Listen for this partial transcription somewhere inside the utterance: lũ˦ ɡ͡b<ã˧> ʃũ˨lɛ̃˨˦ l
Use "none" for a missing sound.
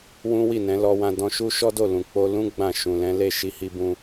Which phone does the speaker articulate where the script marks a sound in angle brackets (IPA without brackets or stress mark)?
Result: ã˦˨